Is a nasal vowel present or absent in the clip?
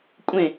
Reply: present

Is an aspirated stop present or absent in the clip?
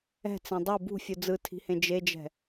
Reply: present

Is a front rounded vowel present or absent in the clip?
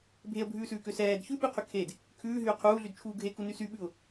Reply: present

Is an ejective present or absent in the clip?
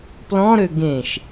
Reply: absent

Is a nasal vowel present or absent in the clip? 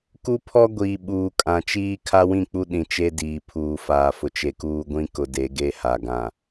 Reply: present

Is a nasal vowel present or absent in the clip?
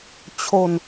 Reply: absent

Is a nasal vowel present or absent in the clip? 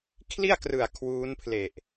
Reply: absent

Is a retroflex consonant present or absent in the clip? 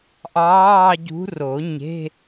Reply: absent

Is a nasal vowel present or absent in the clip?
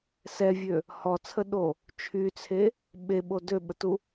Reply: absent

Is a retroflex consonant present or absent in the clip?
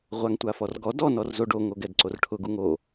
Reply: present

